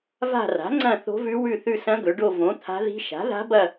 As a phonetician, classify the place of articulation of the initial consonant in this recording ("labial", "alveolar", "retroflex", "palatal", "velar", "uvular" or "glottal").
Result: labial